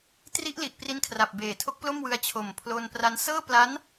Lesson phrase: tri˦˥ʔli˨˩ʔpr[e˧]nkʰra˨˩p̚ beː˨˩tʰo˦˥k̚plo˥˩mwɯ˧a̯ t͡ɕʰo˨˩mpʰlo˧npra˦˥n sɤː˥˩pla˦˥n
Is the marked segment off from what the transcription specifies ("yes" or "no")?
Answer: yes